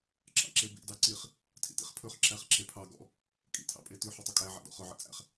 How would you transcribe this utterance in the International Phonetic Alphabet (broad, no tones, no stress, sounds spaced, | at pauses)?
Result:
ǁ ɑ̰ ǁ e b ḭ d ɑ ǀ i χ | tʰ ḭ t ḭ χ pʰ ɵ χ ǁ æ χ ǁ e pʰ ɑ ɡ ɔ̰ | kʼ ḭ tʰ ɑ̰ pʼ e t ʉ ħ ɵ tˤ ɵ kʼ æ ʕ æ̰ d ɔ̰ χ ɵ ʕ ḭ t͡sʼ æ̰ χ